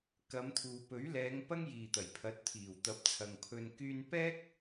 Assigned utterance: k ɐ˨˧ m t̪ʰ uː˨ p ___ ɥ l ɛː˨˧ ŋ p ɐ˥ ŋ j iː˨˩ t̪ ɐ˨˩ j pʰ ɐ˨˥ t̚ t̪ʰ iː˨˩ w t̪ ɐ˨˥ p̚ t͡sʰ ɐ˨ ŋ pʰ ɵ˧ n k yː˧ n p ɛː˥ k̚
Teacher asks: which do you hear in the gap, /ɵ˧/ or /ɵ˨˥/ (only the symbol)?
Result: ɵ˨˥